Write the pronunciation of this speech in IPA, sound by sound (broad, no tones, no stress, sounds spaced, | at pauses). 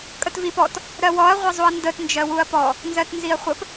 kʼ ə t v i p ɔ t | ɾ ɜ w ɔ ɐ̯ ʁʷ ʌ zˤ u ɐ̯ n d ə t n d͡ʒ ɜ w u ɐ̯ p ɔ | n z ɜ t n z i ɐ̯ χʷ ə p